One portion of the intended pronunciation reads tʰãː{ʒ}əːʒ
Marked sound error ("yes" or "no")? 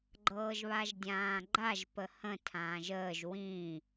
no